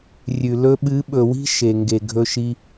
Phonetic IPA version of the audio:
rʲ ʉ˨ l ɵ˧ ɓ ɨ˨˦ ɓ ɵ˨ w i̤˦ ʃ e˨ ŋ ɡ e˨ ɡʱ ɵ˦ ʃ i˦

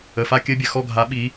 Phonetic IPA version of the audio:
ə˩ f a˦˨ kʲ ɘ˦ bʲ ɘ˩ x ɔ˦˨ ɡʱ a˨˦ ɓ i˨˦

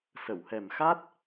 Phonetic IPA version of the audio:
s ə˨˩˨ w h ɛ˨˩ m x a˦˥ t̚

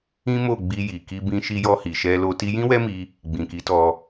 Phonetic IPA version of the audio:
ĩ˦ m o˦˨ ɡ͡b i˧ j i˨ k i˧ b ĩ˧ ʃ i˧ j ɔ˧ h i˨ ʃ ɛ˧ l o˧ t i˧ j ĩ˦ w ɛ˦ m i˧ | ɡ͡b ĩ˨ k i˨˦ t ɔ˧

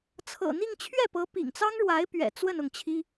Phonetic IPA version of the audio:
t͡sʰ ɤ̰˨˩ n̪ i˥˧ ŋ t͡ɕʰ ɥ ɛ˥˩ p ɤ˧˥ p ḭ˨˩ ŋ t͡s ɑ˥ ŋ ɻ w a˧˥ ɪ̯ p ɥ ɛ̰˨˩ t͡s w ə˥˧ n ʊ˥˩ ŋ t͡ɕʰ i˥

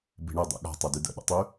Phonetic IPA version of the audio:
b i̤ ɳ ɨ dˤ ḛ ɠ a̤ tˤ e d y d ə̰ ɗ ə̰ tˤ y

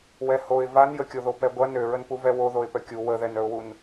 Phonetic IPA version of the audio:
w ɛ h o ɪ̯ v a n j ə kʲ o ð o p ɛ ɡʷ ɐ n ø ɹ ə n p u v ɛ w o ð o ɪ̯ p œ kʲ u w ə ð ɛ n œ ʊ̯ w u n

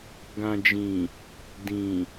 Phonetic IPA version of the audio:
ɡ ã˨ d͡ʒ ĩ˨ | d ĩ˨

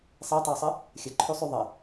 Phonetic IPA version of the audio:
sˤ ɛ tˤ ɑ sˤ ə | xʲ ə ǃʰ ø sˤ ø ðˤ ə

